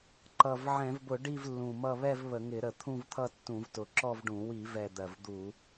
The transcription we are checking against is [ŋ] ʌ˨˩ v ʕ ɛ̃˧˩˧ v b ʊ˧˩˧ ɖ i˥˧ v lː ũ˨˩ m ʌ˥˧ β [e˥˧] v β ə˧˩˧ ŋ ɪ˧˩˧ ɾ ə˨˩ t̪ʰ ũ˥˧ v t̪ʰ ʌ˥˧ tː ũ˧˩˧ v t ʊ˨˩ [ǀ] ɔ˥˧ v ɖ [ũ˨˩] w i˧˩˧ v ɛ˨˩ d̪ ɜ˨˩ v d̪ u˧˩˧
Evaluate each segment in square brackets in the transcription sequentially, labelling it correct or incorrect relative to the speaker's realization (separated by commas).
incorrect, incorrect, incorrect, incorrect